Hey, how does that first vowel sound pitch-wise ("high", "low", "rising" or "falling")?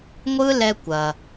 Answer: high